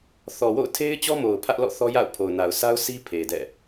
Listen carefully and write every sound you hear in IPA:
θ ɔ˨ w o̰˦˨ ʊ̯ tʰ e˦ ɪ̯ t͡ɕ ɔ˦ m o˨ ʊ̯ pʰ ä˦ ʔ l ɔ̰˦˨ θ ɔ˦ j a̰˦˨ ʊ̯ pʰ o˨ ʊ̯ n a˨ ʊ̯ s a˦ ʊ̯ s i˦ pʰ e˨ d ɛ̰˦˨

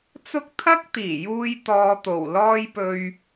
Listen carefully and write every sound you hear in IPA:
t͡s ʊ˥ k̚ t̪ʰ ɐ˥ k̚ t̪ iː˨˩ j uː˧ j t̪ ɔː˧ t̪ o˨˩ w l ɔː˥ j p ɵ˧ ɥ

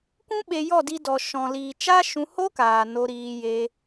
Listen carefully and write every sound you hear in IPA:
kʷ ũ˦ ɓ e˧ j ɔ˦˨ d i˧ d ɔ˨ ʃ ɔ̃˨ l iː˨ t͡ʃ a˦ ʃ ũ˧ h o˦ k aː˨ n o˧ ɾ iː˧ j e˧

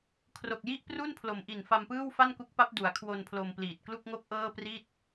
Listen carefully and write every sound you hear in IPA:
kʰ r o˨˩ k̚ j i˥˩ ʔ p r u˥˩ n pʰ l o˩˦ m ʔ i˨˩ n f a˧ m p ɯː˥˩ w f a˥˩ n k u˦˥ k̚ p a˦˥ p̚ d u˩˦ a̯ kʰ w o˧ n pʰ l o˧ m p l iː˨˩ t̚ k l u˥˩ k̚ ŋ o˥˩ k̚ ʔ ɤː˥˩ p r i˥˩ t̚

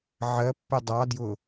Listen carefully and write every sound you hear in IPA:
ʕ ɜ pː ɪ dˤ ɑ d j ʊ

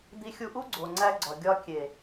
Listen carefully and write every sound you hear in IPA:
d̪ i˧ xʲ u˧ ʔ u˦ ɡ͡ǀ o˨ ŋ͡ǀ æ˧ ɡ͡ǀ ɒ˨ ɡʲ ɒ˧ kʲ e˨

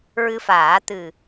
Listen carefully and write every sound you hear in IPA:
ɹ ɨ˧ f aː˨˩˦ t̪ ɨ˨˩

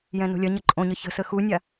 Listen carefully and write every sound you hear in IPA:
j ɛ̃ n o̤ lʲ ɐ ɲ ɐ ǃʼ õ ɲ ə ç ə̤ s ə x u nʲ a

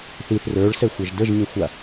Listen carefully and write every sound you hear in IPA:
θ i θ r ə˞ ɭ s ɛ xʷ ɐ ʒ d ə ʒ ɲ ə xʷ a

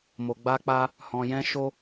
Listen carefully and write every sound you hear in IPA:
m o˧ ɡ͡b a˦ k͡p a˦ | h ɔ̃˧ j ɛ̃˦ ʃ o˦

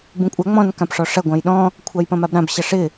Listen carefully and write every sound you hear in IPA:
b ũ kʷʼ a ŋ͡m ɔ̃ n k ã p ʂ ɔ ʂ ɐ ɡʷ ã j ɗ ɔ̃ | kʷʰ a j p ɐ̃ m a b ɾ ã b ɕ ɐ ʂ ɪ

